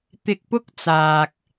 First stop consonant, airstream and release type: plain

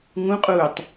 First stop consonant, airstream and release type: ejective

